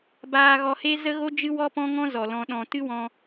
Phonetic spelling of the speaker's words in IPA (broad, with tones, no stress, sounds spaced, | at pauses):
b aː˧ ɣ ɔ˧ h e˦ z ə˦ ɣ o˦ d͡ʒ ɨ˦ w ɔ˦ p ɔ̃˦ ŋ ɔ̃˦ z ɔ˨ l ɔ̃˧ ɗ ɔ̃˧ t ɨ˦ w ɔ̃˧